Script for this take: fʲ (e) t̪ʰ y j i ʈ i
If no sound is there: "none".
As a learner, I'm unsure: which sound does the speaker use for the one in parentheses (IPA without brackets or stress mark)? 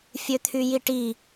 ø